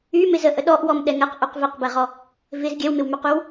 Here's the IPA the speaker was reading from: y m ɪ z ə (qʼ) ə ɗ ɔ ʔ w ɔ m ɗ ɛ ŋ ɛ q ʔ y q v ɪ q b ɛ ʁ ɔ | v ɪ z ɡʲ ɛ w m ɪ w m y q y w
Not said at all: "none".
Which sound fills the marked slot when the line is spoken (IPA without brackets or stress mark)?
ʔ